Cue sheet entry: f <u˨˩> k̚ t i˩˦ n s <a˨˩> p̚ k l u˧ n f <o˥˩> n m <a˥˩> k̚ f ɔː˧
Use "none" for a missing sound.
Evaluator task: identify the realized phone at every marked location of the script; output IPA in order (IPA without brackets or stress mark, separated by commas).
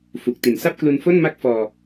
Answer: u˨˩, a˥˩, o˥˩, a˥˩